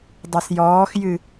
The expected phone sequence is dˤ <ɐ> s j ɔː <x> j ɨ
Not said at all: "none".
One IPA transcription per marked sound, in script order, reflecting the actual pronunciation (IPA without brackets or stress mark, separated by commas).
ɐ, x